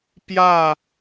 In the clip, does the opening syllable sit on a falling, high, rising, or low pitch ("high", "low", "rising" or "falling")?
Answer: falling